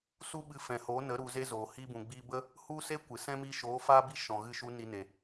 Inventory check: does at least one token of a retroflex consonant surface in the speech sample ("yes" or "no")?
no